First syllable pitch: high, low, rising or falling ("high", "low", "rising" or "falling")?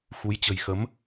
rising